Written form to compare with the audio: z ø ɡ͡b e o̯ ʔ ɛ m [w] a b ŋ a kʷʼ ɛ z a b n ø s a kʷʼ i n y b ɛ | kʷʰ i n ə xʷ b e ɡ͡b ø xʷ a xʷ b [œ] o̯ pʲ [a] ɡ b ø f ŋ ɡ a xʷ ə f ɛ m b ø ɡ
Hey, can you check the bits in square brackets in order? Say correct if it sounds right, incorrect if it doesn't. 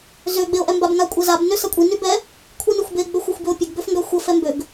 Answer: incorrect, incorrect, incorrect

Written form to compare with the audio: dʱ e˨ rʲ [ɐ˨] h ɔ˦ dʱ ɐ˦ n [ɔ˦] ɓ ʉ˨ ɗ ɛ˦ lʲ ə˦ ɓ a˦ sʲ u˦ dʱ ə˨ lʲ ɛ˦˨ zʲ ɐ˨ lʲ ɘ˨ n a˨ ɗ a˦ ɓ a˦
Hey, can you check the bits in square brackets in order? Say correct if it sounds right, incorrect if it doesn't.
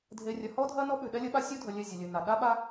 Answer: correct, correct

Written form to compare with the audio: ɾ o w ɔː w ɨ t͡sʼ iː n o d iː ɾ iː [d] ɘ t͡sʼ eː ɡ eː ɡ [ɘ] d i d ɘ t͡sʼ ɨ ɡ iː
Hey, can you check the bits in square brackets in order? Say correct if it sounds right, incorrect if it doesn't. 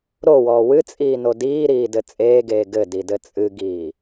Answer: correct, correct

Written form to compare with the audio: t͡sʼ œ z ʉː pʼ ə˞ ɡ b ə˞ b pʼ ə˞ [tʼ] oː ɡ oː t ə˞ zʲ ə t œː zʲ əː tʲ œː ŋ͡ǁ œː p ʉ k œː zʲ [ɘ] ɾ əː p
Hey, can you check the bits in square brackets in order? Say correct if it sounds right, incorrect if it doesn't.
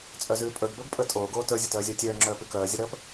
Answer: correct, correct

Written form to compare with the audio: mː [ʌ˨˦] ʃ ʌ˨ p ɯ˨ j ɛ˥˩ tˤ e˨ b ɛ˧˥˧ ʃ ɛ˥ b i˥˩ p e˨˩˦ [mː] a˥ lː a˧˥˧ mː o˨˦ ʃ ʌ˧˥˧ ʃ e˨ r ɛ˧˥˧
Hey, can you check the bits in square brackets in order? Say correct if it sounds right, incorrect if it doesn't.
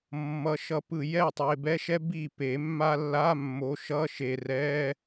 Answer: correct, correct

